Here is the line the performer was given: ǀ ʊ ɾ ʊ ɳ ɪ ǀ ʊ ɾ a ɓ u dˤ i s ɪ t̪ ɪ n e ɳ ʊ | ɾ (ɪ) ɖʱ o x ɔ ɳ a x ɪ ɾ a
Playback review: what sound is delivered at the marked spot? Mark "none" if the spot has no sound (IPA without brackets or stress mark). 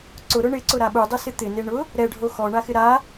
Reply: ɛ